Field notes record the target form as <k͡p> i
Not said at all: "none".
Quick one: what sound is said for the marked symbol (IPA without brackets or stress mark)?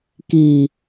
k